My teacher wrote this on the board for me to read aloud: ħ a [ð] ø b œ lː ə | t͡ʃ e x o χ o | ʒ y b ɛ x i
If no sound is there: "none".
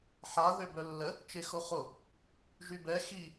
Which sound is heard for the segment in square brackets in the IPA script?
ð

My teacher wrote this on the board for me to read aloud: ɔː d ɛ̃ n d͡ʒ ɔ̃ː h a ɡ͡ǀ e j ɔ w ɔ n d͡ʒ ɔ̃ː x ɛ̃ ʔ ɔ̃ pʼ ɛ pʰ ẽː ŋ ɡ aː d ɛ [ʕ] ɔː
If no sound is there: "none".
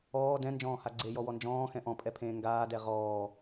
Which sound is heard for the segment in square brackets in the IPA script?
ʁ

